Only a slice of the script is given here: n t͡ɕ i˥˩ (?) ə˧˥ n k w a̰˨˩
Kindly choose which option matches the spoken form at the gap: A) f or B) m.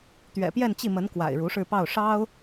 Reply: B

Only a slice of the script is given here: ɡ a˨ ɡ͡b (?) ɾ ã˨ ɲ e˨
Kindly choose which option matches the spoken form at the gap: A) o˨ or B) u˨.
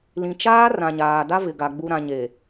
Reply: B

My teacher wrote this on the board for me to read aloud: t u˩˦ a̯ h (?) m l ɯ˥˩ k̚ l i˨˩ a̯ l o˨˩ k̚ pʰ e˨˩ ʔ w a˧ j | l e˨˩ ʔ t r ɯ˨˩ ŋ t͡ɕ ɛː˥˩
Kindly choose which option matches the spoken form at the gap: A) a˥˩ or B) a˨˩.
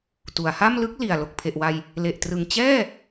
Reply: A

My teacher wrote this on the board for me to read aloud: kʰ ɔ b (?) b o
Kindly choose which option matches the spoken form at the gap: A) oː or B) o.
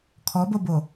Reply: B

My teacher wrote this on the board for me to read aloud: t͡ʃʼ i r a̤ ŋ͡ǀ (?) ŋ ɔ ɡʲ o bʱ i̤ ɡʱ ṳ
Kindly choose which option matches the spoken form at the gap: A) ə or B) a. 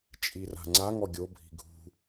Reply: B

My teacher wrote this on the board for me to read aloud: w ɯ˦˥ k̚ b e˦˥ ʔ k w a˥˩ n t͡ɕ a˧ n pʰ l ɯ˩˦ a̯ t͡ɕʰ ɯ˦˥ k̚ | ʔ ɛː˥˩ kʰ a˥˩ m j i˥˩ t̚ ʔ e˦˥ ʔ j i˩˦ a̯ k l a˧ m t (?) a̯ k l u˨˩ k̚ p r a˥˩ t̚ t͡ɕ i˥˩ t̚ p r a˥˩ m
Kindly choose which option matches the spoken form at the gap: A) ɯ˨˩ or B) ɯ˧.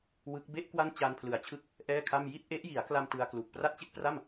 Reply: B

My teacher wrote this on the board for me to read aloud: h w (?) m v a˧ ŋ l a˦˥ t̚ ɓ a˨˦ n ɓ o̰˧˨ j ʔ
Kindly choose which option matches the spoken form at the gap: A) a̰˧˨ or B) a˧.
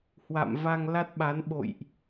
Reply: A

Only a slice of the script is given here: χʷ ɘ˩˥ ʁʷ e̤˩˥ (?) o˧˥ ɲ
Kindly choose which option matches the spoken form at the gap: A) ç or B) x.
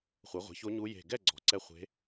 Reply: A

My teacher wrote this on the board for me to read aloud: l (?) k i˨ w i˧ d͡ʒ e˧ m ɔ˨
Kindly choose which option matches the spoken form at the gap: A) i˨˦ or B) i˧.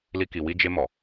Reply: B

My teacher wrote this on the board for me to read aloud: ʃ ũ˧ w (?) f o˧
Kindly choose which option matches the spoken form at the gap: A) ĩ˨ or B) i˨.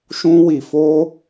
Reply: B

